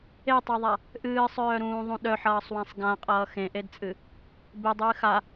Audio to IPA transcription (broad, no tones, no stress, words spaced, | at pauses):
etˤœðˤa | ʔɨːsˤœːɾũːðˤũ ɗœħʌːsˤwãsˤ ɡãqʼʌː xẽʔedt͡sʼɨ | bedˤɨː xa